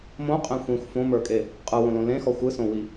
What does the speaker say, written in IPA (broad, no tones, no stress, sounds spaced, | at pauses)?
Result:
m õ qʼ ẽ xʷ ĩ xʷ f õ m ə˞ kʼ e | qʼ ɯ w õ l õ l ẽ x ɔ xʷ ɯ s õ w i